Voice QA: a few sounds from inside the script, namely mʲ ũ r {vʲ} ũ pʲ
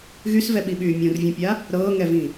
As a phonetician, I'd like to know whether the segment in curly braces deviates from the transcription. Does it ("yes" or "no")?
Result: no